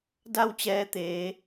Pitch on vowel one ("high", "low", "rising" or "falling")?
falling